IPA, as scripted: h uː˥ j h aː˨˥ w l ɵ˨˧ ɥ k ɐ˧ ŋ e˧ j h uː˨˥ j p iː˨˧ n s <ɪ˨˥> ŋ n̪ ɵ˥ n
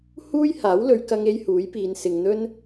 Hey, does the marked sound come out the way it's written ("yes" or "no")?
no